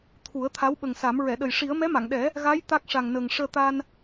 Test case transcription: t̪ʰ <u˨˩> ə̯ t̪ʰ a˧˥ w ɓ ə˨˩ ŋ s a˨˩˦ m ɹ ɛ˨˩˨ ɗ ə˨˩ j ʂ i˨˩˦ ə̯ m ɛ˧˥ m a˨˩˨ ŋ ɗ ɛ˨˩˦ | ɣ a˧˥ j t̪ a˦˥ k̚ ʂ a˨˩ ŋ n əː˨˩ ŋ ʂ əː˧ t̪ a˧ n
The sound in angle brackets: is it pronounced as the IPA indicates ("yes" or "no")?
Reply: no